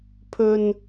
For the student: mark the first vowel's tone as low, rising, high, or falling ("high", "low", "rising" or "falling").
low